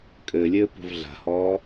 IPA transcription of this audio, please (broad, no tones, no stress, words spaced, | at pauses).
kʼɘlʲɘː pṳvɮa̤hɔː